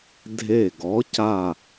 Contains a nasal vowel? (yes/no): no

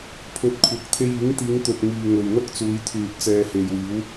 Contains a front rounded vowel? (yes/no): yes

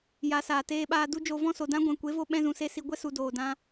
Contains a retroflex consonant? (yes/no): no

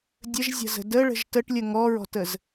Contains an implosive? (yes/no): no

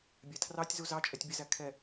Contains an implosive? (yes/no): no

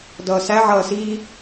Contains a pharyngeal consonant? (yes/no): yes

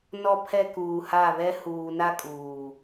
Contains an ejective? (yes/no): yes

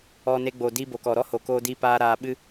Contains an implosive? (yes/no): yes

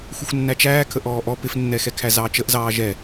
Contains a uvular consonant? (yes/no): no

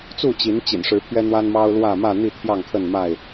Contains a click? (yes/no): no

